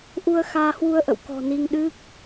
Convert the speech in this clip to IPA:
ʔu˧ə̯xaː˧hwu˧ə̯ ʔə̰˧˨wkɔ̤˨˩ ni˧ŋɗɨ˦˥k̚

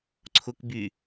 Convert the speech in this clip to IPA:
ǀʰʊk by

